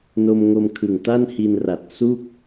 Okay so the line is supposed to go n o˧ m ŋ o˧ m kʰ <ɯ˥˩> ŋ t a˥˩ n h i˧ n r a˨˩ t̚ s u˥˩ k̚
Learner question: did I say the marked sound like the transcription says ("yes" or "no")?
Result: no